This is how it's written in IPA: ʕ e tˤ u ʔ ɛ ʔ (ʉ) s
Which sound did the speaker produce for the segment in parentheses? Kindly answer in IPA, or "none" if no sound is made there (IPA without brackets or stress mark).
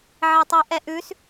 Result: ʉ